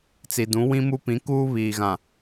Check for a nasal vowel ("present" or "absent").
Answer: present